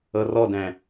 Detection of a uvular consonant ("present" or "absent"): absent